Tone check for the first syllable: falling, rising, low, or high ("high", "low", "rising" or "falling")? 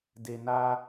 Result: low